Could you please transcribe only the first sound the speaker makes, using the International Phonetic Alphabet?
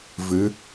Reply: v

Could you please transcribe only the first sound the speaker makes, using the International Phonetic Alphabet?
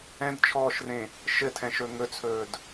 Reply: ɛ̃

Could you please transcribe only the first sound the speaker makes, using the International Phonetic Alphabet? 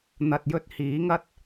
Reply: n̪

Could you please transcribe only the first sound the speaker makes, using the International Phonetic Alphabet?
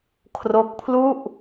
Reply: kʰ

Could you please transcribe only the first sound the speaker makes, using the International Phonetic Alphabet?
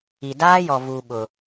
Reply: i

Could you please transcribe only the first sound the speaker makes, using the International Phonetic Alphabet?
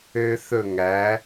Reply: øː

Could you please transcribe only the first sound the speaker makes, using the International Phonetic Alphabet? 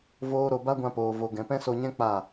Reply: v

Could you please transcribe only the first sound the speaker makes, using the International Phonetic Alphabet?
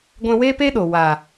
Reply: ɡʷ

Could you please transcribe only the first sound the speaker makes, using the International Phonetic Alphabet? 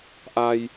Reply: ʔ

